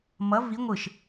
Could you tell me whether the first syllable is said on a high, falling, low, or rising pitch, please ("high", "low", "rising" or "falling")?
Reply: rising